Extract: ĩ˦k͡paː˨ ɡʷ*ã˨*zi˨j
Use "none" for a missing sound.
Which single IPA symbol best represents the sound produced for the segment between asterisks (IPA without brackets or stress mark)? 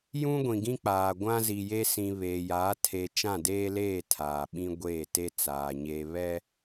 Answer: ã˦